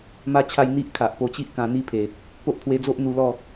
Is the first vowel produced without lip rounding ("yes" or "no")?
yes